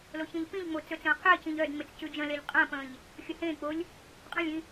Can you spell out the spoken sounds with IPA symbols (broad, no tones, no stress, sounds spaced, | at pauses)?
l o ç ẽ ʎ p ĩ ʎ ŋ͡m o t͡s ɵ t͡s ə̃ː qʰ ɪː c ĩ ʎ œ d ŋ͡m ɪ t͡s c ʉ d͡ʒ ə̃ l e ʎ qʼ ə̃ː p ə̃ː ʎ | xʲ ə h ẽː k͡p o lʲ | qʼ ə̃ lʲ ĩ